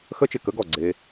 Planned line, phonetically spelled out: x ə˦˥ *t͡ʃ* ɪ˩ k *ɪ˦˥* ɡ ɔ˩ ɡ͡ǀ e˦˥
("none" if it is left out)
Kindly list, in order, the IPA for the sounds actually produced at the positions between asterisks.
t͡ʃ, ə˦˥

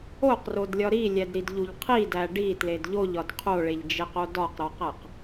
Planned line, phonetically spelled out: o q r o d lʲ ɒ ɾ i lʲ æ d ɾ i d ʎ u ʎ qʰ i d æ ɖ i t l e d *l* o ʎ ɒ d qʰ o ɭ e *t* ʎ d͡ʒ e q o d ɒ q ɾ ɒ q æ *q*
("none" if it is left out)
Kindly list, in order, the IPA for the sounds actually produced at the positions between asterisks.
ʎ, none, q

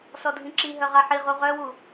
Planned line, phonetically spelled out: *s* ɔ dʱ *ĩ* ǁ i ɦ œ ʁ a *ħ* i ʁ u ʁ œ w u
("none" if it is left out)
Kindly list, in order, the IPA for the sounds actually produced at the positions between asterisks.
s, ĩ, ħ

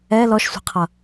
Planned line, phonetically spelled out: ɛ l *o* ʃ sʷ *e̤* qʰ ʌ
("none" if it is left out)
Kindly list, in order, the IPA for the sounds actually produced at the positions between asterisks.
ɔ, e̤

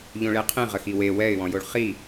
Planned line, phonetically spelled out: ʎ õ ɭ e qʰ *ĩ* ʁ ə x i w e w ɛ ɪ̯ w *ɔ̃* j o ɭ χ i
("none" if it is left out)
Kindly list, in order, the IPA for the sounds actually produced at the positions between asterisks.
ĩ, ɔ̃

